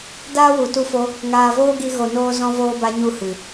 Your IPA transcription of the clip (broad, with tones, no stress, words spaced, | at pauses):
daː˦wu˨tu˧fo˧ | ŋaː˨voː˦ɡi˧ ɣo˨noː˧ zɔ̃˦voː˦ba˦ɲu˦˨ hɨ˨